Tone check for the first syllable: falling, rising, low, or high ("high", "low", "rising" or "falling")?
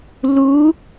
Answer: rising